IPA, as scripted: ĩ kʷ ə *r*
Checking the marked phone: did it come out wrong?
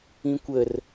no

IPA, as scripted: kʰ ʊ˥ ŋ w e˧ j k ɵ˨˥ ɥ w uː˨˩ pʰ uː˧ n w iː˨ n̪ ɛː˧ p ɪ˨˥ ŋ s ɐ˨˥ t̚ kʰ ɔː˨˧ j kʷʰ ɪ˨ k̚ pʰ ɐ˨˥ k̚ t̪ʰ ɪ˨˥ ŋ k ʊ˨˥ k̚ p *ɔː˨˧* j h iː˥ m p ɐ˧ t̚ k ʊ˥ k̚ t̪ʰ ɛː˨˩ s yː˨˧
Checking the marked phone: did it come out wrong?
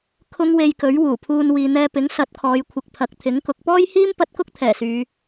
yes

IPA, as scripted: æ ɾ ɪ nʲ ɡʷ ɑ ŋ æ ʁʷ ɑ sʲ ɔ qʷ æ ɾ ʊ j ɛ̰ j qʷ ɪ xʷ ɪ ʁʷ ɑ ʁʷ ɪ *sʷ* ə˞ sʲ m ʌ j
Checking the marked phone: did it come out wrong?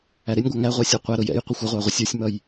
yes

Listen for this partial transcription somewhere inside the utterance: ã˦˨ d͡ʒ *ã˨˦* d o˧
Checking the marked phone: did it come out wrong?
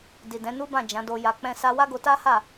no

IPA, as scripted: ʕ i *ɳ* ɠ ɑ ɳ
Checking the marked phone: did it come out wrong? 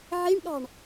no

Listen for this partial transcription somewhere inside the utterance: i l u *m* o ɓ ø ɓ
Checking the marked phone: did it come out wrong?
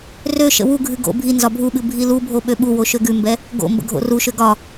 yes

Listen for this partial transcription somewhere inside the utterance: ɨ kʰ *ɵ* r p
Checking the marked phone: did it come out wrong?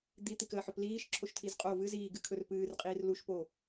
no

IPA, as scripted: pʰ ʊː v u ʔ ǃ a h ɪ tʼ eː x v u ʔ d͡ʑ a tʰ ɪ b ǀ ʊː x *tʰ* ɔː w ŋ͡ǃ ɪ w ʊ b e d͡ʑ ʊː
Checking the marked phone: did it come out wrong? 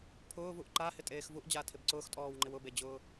yes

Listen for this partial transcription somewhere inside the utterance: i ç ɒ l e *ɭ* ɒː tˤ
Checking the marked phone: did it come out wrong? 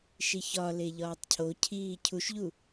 yes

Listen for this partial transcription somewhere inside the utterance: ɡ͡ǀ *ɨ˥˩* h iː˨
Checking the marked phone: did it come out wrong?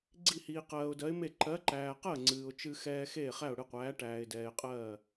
yes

